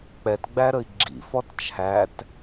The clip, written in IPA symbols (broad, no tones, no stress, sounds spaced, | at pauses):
k͡p ɛ t ɡ͡b æ ɾ ə i̯ ɡ͡ǁ ḭ f ɔ t t͡ʃʰ æ t